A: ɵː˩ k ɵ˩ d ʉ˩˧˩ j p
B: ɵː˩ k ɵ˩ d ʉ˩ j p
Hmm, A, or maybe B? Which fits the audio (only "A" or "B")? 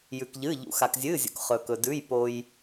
A